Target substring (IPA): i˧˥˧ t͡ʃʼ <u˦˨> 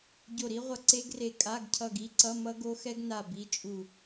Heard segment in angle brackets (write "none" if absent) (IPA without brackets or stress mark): u˦˨